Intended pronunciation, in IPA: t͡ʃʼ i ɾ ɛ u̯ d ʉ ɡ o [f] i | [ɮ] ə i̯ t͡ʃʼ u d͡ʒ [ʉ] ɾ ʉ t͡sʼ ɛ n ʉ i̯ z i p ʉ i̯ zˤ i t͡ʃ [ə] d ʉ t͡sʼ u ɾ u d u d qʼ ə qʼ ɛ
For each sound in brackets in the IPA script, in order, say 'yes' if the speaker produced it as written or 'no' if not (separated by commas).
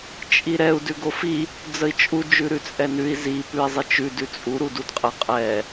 yes, no, yes, no